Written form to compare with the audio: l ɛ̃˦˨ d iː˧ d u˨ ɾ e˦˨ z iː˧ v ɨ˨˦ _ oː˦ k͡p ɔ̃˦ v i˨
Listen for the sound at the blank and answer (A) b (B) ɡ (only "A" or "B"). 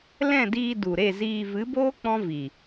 A